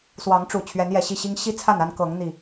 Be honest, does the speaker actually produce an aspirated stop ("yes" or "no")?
yes